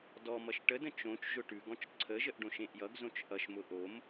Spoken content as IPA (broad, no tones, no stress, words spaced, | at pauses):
dɔmʌʃ ʈədə̃ t͡ʃõt͡ʃ ʒʊʈʉɡɔ̃t͡ʃ ǀʰəʒəʔɖõʃ ẽʔjʌɡzõt͡ʃ ʔʌʃmʊ ʔom